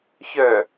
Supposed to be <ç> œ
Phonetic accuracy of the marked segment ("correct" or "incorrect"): correct